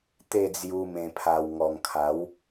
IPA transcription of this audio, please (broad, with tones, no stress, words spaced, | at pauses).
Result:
t̪e˥˧d͡zju˧ mẽ˨˩pʰa˨˩w ŋɔ˨˩ŋkʰa˨˦w